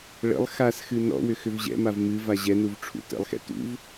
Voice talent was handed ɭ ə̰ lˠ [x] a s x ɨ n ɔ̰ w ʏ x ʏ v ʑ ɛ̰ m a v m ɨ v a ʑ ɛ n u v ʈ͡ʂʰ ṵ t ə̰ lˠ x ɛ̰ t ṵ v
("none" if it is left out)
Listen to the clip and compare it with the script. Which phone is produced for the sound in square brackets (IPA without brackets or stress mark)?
x